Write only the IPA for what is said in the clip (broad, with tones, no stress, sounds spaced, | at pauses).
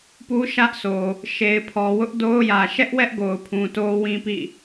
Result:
p u˦ ʃ ä˦ ʔ sʰ o˨ | ʃ e˨ ɪ̯ pʰ ɔ˨ w ʊ˦ ʔ d o˦ ʊ̯ j ä˨ ʃ ɛ˦ ʔ w ɛ˦ ʔ ɡ o˨ ʊ̯ pʰ ũ˨ t o˦ w ĩ˦ p ḭ˦˨